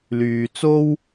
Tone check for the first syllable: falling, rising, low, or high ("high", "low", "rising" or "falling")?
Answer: low